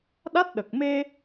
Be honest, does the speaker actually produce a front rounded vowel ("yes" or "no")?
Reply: no